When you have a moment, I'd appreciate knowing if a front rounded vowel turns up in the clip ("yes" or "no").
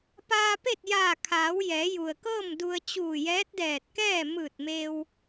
no